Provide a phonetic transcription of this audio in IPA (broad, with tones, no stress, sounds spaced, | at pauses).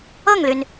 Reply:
ɤ˥˩ ŋ l y˩ n